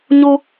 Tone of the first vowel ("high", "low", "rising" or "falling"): high